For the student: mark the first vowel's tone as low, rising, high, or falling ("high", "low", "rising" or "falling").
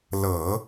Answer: low